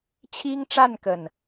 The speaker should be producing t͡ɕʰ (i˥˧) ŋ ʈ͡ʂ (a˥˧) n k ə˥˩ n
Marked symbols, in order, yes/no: no, yes

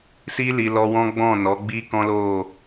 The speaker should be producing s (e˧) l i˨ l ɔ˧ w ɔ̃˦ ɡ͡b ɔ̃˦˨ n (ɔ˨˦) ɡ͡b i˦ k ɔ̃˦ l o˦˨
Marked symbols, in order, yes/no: no, yes

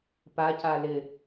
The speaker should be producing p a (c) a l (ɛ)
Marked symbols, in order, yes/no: yes, no

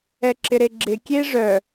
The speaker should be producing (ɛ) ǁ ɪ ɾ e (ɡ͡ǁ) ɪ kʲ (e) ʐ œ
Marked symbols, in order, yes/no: yes, yes, yes

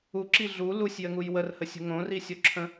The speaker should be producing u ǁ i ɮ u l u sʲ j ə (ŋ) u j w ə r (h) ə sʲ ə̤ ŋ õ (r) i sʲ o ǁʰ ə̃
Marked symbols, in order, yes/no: yes, yes, yes

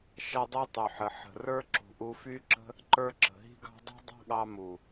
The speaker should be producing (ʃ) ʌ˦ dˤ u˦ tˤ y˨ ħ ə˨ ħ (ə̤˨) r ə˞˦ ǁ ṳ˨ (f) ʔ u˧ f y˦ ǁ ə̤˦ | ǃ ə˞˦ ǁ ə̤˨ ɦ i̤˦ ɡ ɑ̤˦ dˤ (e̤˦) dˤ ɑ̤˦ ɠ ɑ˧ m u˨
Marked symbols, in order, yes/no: yes, yes, no, no

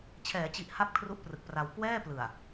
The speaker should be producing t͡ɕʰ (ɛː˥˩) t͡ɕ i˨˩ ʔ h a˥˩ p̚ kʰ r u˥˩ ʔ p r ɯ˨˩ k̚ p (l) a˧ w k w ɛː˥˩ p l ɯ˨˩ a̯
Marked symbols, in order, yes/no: no, no

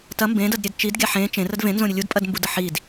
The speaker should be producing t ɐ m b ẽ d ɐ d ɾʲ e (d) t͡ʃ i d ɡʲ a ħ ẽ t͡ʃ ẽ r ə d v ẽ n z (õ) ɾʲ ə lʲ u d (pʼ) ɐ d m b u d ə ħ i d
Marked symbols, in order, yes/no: yes, yes, yes

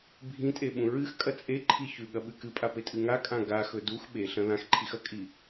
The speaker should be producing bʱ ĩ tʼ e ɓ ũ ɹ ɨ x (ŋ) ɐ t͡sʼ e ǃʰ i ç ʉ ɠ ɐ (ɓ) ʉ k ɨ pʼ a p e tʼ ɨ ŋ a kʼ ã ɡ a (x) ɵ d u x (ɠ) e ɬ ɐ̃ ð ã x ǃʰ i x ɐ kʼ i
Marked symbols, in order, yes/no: no, yes, yes, no

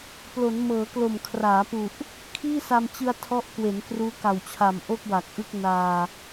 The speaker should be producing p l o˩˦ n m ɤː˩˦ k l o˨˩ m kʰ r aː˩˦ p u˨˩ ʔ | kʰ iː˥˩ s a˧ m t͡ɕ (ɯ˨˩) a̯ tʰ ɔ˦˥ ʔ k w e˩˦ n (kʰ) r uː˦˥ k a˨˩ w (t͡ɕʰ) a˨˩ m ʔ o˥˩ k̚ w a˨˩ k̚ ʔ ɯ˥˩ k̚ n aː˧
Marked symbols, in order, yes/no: no, no, yes

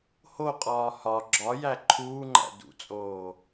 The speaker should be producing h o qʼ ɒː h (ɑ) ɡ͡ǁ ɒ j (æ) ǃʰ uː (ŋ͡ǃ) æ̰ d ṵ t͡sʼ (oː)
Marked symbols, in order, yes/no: no, yes, yes, yes

